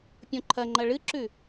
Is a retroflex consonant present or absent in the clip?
present